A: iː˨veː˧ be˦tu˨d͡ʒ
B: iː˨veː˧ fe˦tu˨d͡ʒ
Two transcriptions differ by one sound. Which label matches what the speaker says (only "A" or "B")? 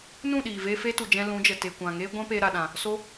B